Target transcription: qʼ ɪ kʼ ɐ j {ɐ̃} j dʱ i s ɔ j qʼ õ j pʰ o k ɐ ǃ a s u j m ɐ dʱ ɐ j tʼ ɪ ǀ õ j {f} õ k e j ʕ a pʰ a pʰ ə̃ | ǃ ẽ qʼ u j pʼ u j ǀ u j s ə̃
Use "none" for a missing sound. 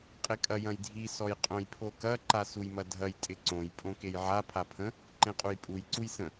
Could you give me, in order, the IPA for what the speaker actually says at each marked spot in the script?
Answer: ɐ̃, pʼ

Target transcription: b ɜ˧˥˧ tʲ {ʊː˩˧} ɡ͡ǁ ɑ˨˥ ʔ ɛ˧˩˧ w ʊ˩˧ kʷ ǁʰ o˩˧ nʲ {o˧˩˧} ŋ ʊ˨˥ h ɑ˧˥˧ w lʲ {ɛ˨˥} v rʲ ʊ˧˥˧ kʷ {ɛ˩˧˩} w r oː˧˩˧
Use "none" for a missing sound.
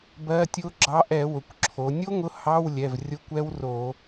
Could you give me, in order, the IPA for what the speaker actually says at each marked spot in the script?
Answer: ʊː˦˥, o˦˥, ɛ˩˧˩, ɛ˦˥

